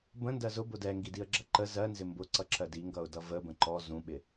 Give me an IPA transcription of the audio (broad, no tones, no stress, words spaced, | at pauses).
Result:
bə̃ndɜ zʊbʊ dɛŋɡidiə̯ɡ͡ǁʌ ǃə zɜnzɪ mbʊǀʌǁʰɜ diŋɡʌʊ̯dʌ vəbə̃ ǃɔ zũɓɪ